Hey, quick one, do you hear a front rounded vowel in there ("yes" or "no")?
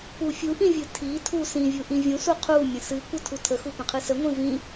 no